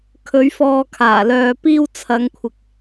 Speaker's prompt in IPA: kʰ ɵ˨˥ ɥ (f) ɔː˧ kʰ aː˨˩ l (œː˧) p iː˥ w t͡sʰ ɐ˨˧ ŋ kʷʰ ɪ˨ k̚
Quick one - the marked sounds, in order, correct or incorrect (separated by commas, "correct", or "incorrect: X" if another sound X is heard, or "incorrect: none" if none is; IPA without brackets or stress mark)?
correct, incorrect: œː˨